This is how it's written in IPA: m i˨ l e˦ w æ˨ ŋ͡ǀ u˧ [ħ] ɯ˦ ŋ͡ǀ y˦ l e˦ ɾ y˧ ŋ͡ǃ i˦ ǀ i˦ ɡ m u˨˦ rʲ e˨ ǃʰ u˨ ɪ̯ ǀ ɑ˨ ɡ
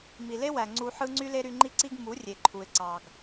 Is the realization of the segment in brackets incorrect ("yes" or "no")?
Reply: no